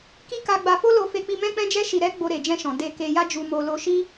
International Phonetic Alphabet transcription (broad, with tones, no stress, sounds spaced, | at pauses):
k i˦ k a˧ ɡ͡b a˧ f o˦ l o˧ f e˧ k͡p i˧ m ɛ̃˦ k͡p ɛ̃˦ d͡ʒ ɛ˦ ʃ i˧ ɾ ɛ˦ ɡ͡b o˧ ɾ e˨ d͡ʒ ɛ̃˧ ʃ ɔ̃˨ d e˧ k e˧ j a˦ d͡ʒ u˧ m o˧ l o˧ ʃ i˦